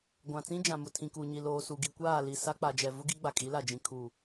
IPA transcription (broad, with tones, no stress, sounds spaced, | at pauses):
ɡʷ ã˨ t͡s ĩ˦ d͡ʒ ã˨ m ʊ˨ tʰ ĩ˨ k u˨ ɲ i˨ l oː˨ s u˨ ɡ i˨ kʷ aː˦˨ l i˨ s a˦ k͡p a˨ d͡ʒ ɛ˨ v ʊ˦ ɡ i˦ ɡ͡b a˨ kʼ i˨˦ l a˨ d͡ʒ ĩ˨ kʰ u˨